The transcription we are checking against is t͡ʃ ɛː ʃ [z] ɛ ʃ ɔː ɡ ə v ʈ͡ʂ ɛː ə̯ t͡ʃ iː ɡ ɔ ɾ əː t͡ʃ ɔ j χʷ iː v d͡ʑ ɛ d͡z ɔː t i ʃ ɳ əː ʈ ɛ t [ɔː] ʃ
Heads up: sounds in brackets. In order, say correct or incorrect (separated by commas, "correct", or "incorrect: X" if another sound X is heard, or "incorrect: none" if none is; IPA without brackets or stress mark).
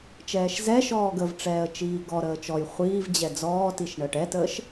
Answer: correct, incorrect: əː